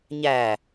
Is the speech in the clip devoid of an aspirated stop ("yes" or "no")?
yes